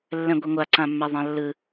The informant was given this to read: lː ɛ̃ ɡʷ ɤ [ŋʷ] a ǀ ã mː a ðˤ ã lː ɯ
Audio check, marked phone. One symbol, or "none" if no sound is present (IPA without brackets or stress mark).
ŋʷ